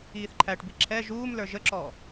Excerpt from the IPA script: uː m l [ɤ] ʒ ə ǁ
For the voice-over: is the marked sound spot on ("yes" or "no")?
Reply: no